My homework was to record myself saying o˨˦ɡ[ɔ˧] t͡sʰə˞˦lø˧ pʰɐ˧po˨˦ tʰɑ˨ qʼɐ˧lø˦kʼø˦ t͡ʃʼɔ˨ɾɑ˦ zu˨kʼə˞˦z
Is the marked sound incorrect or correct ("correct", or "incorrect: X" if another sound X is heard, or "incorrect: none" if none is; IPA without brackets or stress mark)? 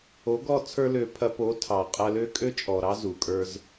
correct